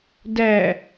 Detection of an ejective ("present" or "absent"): absent